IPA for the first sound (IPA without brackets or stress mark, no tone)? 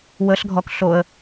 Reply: w